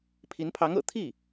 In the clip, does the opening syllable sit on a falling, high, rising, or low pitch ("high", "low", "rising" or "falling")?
rising